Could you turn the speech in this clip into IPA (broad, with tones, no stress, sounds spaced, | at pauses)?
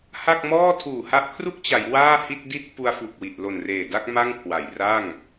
h a˥˩ k̚ m ɔː˥˩ tʰ uː˨˩ h a˦˥ ʔ kʰ r u˥˩ k̚ t͡ɕ a˩˦ j w aː˥˩ h i˥˩ t̚ d i˥˩ t̚ p u˧ a̯ f u˨˩ k̚ w i˨˩ ʔ l o˨˩ n r eː˨˩ d a˥˩ k̚ m a˥˩ ŋ kʰ w a˩˦ j r a˥˩ ŋ